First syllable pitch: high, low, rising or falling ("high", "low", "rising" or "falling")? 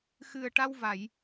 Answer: low